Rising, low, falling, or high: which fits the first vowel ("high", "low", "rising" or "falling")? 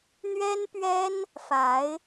high